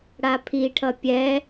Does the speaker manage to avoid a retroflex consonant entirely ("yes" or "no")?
no